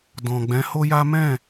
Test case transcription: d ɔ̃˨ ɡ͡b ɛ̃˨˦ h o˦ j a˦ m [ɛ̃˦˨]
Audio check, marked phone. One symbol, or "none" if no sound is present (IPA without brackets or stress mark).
ɛ̃˦˨